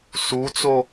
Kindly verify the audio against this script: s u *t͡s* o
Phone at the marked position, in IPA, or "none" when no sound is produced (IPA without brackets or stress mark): t͡s